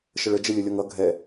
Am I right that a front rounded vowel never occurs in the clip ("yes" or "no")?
yes